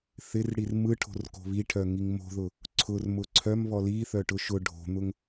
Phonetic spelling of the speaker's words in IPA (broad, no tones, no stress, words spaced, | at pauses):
θɪrɽir mɯʈʰo̤rko̤ βiʈʰœŋiŋ mo̤ðʊ | ǀʰʊrmʊ ǀʰœmβɔ liθœʈʊ ʃʊ ɖʱo̤n̪ʊŋ